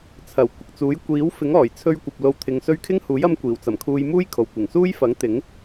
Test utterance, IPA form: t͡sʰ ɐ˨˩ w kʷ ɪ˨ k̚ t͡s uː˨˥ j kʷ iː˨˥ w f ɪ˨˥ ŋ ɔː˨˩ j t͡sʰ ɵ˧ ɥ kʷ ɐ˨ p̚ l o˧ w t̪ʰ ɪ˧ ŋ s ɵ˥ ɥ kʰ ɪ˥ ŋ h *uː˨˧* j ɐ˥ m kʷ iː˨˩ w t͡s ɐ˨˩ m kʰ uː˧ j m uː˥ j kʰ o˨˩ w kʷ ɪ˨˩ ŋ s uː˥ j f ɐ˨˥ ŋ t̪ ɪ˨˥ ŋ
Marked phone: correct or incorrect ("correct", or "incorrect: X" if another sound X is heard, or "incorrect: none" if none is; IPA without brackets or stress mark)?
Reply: incorrect: uː˨˥